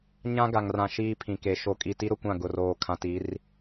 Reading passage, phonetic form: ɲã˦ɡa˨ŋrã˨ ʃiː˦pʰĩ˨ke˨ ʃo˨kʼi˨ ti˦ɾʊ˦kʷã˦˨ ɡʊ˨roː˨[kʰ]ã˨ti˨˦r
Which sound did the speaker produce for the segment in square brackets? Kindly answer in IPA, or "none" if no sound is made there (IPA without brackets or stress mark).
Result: kʰ